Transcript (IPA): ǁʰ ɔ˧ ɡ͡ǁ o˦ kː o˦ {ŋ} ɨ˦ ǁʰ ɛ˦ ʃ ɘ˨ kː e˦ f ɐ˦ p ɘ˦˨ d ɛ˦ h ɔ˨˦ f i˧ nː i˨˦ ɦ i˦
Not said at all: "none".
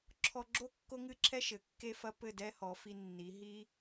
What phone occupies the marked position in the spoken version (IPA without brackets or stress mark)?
ŋ